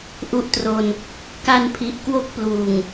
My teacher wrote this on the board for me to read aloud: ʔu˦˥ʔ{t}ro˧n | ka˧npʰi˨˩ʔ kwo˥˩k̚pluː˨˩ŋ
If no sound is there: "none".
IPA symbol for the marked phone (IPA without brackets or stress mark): t